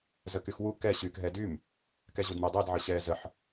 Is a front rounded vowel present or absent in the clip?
present